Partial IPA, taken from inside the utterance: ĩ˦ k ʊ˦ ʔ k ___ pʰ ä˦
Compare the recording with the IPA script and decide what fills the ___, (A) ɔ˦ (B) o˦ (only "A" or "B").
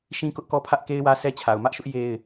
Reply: A